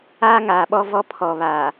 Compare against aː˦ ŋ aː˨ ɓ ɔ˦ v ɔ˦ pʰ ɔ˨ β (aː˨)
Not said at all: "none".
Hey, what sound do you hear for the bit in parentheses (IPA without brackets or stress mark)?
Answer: aː˨